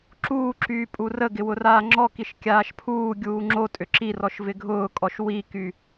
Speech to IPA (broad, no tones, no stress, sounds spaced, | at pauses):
ǁ uː ǁ yː pʼ u r ə ɡ ɪ w ʊ r aː ŋ͡ǁ ɔ k i ʃ kʲ aː ʃ pʰ uː ɡʲ uː ŋ͡ǁ o tʼ ʏ ǁ i r ɔ ʃ v ɪ ɡʱ ʊː kʼ ɔ ʃ w i k y